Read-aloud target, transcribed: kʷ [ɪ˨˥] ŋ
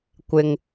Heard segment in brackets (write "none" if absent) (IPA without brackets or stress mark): ɪ˨